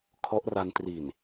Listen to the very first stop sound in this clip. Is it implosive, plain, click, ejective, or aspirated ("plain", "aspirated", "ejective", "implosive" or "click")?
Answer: aspirated